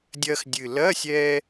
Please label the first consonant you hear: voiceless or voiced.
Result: voiced